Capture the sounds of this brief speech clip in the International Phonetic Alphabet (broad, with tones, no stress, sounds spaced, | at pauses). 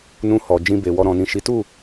n ũ˧ h ɔ˨ d͡ʒ ĩ˧ b e˨ w ɔ˧ ɾ ɔ̃˨ n ĩ˨ ʃ i˨˦ t u˦˨